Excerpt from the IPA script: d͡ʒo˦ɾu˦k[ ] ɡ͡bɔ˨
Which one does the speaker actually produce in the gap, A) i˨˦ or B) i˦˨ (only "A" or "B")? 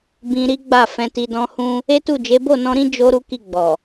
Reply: B